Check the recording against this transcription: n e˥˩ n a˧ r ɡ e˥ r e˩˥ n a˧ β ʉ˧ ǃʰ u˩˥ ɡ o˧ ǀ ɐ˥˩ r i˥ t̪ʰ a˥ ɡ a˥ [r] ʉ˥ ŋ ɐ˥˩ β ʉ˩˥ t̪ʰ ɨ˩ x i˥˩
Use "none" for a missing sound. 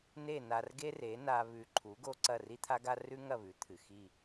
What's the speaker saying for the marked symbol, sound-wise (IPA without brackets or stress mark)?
r